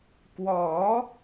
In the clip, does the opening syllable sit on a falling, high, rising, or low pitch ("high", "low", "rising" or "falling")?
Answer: rising